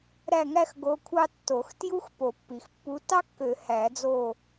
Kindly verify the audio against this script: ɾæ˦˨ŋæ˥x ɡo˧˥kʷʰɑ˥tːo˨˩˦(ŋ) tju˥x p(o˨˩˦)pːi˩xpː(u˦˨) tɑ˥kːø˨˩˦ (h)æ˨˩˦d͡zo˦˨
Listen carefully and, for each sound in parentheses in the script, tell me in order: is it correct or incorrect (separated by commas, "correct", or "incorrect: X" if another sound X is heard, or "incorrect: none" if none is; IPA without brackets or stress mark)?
incorrect: x, correct, incorrect: u˧˥, correct